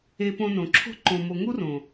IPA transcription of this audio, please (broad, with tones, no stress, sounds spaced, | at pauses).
e˧ p õ˧ n õ˨ ǁʰ o̤˧ ǃ õ˨ m o˨ ŋ u˦ r õ˨